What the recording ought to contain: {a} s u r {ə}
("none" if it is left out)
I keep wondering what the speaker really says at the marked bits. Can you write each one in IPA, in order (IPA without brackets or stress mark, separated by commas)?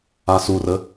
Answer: a, ə